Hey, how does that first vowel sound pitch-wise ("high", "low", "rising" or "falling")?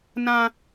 high